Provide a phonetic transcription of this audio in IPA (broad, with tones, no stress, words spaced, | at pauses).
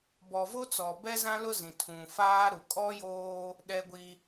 bɔ˨vo˦t͡sɔ˨ bɛ˦zã˦lʊ˦zĩ˨ tʰũ˨ faː˦ɾu˨ kʼɔ˦joː˦ | ɗɛ˦ɡʷi˦